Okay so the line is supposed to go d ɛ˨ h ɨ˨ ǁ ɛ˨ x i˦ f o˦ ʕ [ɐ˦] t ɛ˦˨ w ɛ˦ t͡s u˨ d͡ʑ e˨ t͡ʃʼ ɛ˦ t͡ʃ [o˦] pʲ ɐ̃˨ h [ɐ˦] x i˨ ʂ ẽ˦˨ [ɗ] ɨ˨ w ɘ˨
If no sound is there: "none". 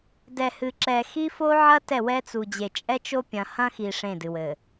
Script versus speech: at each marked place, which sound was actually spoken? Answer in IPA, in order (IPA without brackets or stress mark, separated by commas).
ɐ˦, o˦, ɐ̃˦, d